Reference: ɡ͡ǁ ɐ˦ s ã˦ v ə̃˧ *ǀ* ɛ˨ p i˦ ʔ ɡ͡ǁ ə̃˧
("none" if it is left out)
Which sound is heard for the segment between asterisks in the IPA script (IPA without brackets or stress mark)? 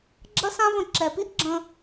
ǁ